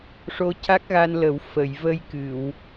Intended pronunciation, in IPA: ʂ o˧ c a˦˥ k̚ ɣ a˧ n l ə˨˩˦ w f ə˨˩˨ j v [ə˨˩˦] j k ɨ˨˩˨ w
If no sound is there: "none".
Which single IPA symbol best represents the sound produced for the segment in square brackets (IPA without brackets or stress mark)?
ə˧